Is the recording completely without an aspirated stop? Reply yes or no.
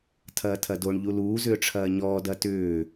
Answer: no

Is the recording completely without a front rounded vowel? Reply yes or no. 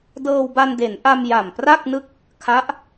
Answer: yes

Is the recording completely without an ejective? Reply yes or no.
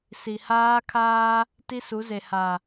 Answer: yes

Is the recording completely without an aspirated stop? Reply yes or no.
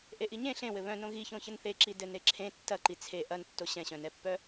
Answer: no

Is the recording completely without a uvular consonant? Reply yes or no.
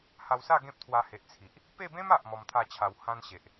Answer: yes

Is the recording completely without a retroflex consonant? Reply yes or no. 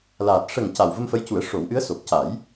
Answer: no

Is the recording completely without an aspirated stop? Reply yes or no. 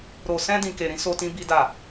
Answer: yes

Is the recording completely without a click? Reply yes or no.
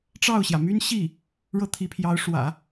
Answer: yes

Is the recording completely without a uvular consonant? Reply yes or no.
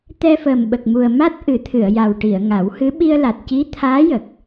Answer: yes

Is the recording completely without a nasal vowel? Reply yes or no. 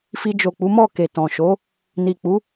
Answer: no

